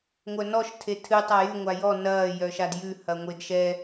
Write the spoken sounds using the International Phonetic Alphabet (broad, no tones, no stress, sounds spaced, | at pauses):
ŋʷ œ n ɔ ʃ tʰ e tʰ ɨ tˤ a j ʉ ŋʷ a j ɔ n ɐː j œ ʃ a d j ʉ h ɐ ŋʷ e d ʃ ɛ